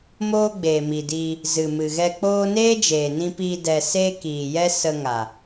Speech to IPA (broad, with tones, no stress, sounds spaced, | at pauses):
m oː˦ ɡ͡b eː˨ m i˨ d i˧ | z ɨ˨ m ɨ˨ ɣ ɛ˧ k͡p oː˦ n eː˦ d͡ʒ eː˨ n ĩ˧ p iː˧ d ɛ˧ s eː˦ k iː˨ j ɛ˦ s ə˧ ŋ a˨